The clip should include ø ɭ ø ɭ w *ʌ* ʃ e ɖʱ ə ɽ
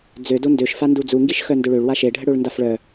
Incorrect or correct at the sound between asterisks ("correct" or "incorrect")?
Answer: incorrect